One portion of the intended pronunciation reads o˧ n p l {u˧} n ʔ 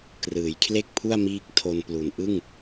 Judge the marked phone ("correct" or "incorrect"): incorrect